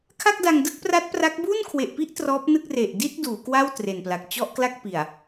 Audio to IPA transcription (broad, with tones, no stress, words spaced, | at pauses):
kʰa˥˩k̚da˧ŋdɯ˥˩k̚pra˦˥t̚ pra˦˥k̚ buː˥˩nkʰwe˨˩ʔpi˥˩ʔ trɔː˦˥p̚nɯ˥˩k̚ re˨˩ʔdi˥˩t̚ duː˩˦kwa˥˩w tre˨˩npla˨˩k̚ t͡ɕɔ˥˩ʔkla˥˩k̚ pi˨˩a̯